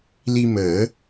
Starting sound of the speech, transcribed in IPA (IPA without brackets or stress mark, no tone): l